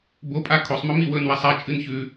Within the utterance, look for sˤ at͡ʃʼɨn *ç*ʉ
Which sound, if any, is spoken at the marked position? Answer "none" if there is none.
ç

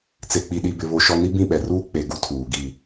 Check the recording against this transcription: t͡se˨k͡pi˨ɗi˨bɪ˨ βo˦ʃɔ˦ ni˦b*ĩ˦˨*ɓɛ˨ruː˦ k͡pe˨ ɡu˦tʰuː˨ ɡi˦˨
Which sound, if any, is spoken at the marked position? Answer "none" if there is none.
ĩ˦˨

